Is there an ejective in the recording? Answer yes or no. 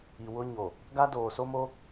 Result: no